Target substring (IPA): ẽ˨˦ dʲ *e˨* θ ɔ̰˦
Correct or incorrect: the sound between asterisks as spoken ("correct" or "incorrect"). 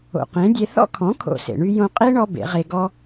incorrect